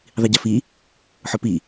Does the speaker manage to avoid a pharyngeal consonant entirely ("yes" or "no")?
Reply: no